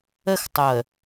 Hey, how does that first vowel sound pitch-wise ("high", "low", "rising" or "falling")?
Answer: falling